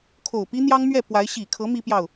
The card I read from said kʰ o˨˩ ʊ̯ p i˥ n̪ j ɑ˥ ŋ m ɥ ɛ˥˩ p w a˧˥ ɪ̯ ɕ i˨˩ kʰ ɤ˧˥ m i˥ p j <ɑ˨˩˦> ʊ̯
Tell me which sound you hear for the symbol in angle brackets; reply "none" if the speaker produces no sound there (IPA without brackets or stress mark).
ɑ˥˩